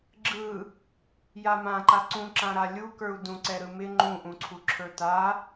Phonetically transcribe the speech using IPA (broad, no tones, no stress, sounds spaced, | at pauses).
ɡ͡ǁ ɯ | j a m ã ǃ a ǀ ũ ǁ ã ɾ a lʲ u k ə˞ u̯ d ũ ǀ ɛ ɾ ɯ m ɪ ŋ͡ǃ ũ ʔ ũ ǀʰ u ǁʰ ə˞ t a